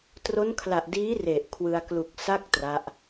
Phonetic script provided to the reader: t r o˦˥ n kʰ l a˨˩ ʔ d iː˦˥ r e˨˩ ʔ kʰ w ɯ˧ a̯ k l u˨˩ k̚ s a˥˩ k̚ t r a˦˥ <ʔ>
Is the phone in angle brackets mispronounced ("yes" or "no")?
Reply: no